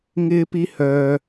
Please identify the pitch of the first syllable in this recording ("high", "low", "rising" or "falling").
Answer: high